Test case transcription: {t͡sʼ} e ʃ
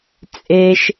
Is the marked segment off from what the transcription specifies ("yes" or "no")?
no